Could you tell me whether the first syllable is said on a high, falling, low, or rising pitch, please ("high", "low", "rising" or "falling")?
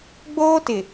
high